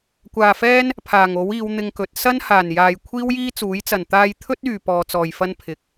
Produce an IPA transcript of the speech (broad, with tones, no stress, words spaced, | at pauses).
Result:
kʷaː˨fɛː˥n | pʰaː˨˩ŋo˨˥wiː˨˧w n̪ɪ˧ŋkɵ˨˥t̚ sɐ˥nhaː˨˩njaː˨j kʷʰiː˥wjiː˥t͡suː˨˥jt͡sɐ˨˩n t̪aː˧jt̪ʰɵ˥t̚yː˨ pɔː˨˧t͡sɔː˨jfɐ˥n pʰɪ˨k̚